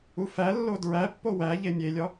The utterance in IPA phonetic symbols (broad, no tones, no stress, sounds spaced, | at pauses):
u f æ lː o d ɹ æ pː o w æ ʎ e mʲ e lʲ ɒ